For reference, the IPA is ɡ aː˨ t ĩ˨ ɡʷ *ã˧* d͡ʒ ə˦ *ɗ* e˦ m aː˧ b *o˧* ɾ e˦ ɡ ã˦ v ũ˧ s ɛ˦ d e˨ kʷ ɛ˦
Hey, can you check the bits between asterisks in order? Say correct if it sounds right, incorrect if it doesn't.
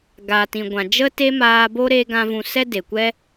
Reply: incorrect: ã˨, incorrect: t, incorrect: o˦

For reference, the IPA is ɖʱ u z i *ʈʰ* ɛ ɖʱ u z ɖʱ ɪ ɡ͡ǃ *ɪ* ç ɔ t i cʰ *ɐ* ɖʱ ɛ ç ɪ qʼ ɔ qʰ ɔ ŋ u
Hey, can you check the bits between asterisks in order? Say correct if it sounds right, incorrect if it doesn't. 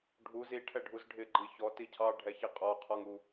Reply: correct, incorrect: i, incorrect: ɑ

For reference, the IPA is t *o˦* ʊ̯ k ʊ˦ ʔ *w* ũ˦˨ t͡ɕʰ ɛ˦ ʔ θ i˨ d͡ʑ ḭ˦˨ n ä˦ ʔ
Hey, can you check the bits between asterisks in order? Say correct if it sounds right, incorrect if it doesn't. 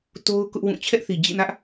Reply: correct, correct

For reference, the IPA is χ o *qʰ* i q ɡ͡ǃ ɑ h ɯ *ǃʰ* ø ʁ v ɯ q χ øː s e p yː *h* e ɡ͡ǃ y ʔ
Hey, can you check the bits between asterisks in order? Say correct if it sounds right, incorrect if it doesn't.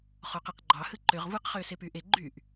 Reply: incorrect: q, incorrect: ǃ, incorrect: ʔ

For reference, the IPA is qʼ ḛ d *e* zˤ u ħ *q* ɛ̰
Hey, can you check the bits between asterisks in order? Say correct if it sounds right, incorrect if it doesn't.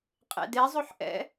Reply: correct, incorrect: ʔ

